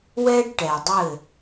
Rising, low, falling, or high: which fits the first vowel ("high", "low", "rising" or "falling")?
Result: high